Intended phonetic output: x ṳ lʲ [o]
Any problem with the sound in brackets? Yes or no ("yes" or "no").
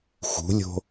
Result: yes